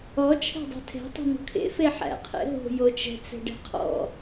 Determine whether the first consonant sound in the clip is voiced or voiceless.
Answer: voiceless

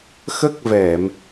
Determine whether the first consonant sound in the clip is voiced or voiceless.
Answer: voiceless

